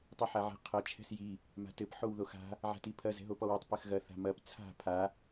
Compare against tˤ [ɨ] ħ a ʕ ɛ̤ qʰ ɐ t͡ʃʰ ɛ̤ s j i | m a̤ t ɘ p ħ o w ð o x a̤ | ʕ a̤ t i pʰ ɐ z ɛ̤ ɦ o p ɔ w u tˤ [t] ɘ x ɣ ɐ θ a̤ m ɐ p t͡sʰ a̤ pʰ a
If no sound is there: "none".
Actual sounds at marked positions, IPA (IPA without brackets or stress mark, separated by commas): ɨ, p